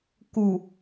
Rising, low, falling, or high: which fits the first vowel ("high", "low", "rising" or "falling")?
low